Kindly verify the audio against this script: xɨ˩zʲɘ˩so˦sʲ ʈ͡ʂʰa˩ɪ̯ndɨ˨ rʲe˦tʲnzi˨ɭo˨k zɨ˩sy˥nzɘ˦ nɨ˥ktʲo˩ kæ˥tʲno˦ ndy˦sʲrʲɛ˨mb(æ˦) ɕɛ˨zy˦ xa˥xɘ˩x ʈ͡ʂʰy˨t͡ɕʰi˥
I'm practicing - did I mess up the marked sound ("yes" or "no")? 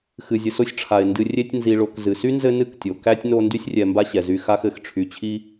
yes